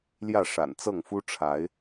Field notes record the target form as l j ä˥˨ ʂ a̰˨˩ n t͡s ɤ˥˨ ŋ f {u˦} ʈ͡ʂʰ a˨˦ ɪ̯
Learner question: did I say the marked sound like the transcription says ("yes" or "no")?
yes